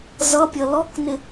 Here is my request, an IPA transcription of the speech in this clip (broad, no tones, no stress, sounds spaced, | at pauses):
z ʌ pʲ ʌ l ɔ k n ɪ